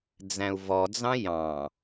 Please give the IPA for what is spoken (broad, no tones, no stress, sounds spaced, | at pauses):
d͡z æ̃ u̯ v ɔ d͡z ɑ̃ j ɑ̃